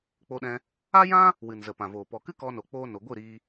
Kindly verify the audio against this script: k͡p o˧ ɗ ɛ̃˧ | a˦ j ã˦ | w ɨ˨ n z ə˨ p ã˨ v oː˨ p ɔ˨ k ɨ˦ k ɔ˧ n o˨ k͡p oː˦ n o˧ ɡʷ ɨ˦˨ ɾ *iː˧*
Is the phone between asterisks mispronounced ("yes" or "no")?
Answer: no